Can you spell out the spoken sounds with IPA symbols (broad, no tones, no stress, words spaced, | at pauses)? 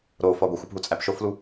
ɾofɒ ɡʷixʷup ɦut͡sʼæpʃoflu